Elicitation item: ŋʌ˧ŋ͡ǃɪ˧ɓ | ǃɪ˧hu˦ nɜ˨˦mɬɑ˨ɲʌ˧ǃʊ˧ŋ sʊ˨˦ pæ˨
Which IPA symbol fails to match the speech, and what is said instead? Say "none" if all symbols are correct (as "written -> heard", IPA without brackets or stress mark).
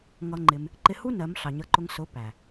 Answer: ɓ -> m